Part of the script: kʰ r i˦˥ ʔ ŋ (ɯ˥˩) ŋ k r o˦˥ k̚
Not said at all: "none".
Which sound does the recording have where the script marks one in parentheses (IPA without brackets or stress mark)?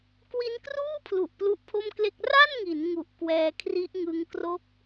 ɯ˦˥